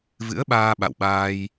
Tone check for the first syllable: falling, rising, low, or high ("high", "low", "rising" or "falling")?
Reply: rising